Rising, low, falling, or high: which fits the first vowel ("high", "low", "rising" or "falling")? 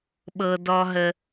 low